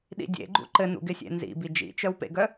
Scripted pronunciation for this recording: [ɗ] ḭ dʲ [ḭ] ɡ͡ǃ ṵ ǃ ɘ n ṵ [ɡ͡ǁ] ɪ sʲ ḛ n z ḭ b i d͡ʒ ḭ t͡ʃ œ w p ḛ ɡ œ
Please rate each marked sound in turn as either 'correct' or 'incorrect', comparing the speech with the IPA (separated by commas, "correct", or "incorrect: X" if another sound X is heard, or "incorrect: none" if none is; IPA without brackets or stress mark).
correct, incorrect: ḛ, incorrect: ɡ